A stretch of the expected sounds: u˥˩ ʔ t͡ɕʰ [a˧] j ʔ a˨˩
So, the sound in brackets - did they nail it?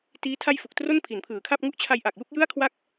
yes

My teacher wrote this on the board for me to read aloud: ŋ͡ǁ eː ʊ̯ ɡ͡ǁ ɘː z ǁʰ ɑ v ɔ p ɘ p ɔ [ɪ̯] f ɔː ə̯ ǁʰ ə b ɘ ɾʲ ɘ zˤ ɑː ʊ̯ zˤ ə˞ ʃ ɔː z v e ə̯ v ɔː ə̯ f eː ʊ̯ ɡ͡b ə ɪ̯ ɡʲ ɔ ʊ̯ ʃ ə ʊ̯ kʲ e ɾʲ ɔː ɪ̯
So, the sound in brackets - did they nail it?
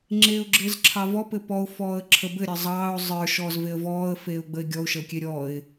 no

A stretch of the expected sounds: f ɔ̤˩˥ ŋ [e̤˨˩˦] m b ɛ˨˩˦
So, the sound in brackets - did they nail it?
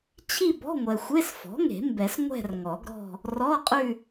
yes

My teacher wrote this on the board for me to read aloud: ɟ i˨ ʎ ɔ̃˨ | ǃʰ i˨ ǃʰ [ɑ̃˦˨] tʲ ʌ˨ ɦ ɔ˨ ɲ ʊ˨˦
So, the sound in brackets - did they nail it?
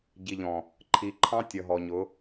no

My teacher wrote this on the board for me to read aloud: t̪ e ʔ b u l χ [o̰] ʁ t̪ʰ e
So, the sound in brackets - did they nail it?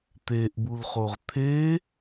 no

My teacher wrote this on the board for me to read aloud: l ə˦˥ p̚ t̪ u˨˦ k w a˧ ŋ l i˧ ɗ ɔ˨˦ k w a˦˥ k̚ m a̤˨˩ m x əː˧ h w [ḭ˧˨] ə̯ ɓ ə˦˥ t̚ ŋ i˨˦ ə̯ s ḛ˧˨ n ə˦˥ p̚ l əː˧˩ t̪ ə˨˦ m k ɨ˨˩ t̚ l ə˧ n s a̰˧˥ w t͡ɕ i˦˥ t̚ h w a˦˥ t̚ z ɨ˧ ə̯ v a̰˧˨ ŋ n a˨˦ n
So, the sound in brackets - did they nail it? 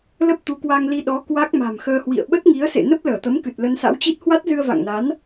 yes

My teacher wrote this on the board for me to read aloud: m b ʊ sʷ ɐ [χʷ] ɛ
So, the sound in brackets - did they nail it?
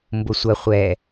yes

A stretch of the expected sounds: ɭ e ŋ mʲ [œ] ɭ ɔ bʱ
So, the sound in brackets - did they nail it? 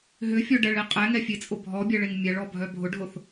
no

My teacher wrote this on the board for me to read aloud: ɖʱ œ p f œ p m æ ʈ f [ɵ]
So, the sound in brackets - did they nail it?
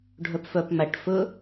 yes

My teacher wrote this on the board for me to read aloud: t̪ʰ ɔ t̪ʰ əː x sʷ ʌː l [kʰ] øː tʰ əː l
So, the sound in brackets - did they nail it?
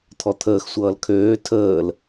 yes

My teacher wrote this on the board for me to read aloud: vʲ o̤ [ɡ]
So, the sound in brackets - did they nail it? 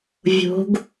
yes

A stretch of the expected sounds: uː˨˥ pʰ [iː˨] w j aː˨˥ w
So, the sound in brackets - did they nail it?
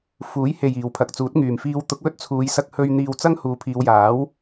no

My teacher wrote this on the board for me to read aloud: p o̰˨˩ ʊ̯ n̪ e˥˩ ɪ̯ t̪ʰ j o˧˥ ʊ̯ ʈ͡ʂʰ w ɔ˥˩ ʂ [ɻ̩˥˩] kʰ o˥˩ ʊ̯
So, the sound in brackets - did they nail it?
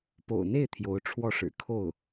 no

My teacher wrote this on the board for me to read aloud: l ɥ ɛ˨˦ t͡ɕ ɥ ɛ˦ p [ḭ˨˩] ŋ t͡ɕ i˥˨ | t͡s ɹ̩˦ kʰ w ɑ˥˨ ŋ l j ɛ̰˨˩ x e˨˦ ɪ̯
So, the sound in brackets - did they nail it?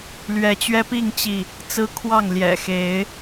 no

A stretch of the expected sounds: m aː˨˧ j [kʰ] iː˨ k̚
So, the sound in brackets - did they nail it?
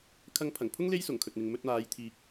no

